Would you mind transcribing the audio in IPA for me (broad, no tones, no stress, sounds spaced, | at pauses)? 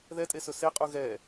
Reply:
ð ɛ tʼ e s ɵ s e qʼ u ɣ ɛ